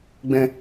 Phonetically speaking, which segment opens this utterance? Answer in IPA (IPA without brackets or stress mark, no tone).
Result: ɡ͡b